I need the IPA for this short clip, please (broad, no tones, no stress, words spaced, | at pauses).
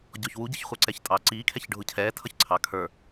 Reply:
ɟɔçwu ɟɪçχʷə˞ǀɛçtʼɑ ǀiː kʰɛçɖʱʊcʰɛː tʰʌçǀʰɑ kʰə˞